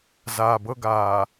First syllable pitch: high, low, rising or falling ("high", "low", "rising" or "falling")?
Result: low